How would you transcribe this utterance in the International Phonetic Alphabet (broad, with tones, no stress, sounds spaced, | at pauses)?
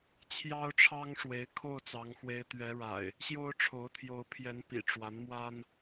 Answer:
t͡ɕʰ j ɑ˦ ʊ̯ ʈ͡ʂʰ ɑ˦ ŋ ʂ w e˨˦ ɪ̯ kʰ o˥˨ ʊ̯ t͡s ɑ˨˦ ŋ x w e˨˦ ɪ̯ t̪ ɥ ɛ˨˦ ɻ a̰˨˩ ɪ̯ | ɕ j o˦ ʊ̯ ʈ͡ʂʰ o˨˦ ʊ̯ t̪ʰ j o˨˦ ʊ̯ pʰ j ɛ˨˦ n p ḭ˨˩ ʈ͡ʂ w a˨˦ n m w a˦ n